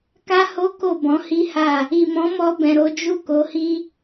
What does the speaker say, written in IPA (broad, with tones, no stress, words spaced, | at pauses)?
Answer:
ka˦ho˦ko˦˨ bɔ̃˨˦ hi˦ha˦˨ | i˨mɔ̃˨˦mɔ˧ bɛ̃˨ɾo˨˦d͡ʒu˦˨ ko˨˦hi˦